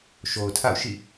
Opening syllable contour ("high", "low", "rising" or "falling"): low